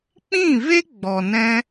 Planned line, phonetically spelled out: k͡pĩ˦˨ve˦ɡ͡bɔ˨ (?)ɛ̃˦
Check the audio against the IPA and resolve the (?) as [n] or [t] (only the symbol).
n